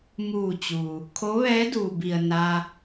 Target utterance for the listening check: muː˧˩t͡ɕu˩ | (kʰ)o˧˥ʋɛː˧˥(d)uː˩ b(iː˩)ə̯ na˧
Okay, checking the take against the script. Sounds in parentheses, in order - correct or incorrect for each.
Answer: correct, correct, incorrect

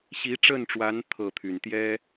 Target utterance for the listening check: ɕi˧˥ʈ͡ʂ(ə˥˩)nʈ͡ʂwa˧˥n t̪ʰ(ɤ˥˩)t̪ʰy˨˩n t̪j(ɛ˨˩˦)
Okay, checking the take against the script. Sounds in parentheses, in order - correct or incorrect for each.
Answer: correct, correct, incorrect

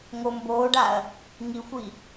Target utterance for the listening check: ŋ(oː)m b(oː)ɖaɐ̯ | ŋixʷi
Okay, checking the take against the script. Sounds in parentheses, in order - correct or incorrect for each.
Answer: incorrect, correct

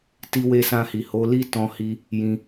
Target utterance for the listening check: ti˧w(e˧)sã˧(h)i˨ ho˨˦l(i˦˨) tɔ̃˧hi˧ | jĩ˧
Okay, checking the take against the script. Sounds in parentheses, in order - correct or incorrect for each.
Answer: correct, correct, incorrect

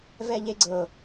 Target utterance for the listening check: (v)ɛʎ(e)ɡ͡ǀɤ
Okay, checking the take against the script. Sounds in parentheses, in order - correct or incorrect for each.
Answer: correct, correct

